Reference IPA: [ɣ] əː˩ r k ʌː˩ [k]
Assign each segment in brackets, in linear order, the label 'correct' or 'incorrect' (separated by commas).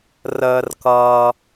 incorrect, incorrect